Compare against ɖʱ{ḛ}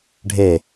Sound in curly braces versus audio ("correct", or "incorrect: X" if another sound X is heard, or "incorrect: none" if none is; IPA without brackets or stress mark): incorrect: e